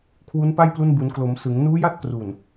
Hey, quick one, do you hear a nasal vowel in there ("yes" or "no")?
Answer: no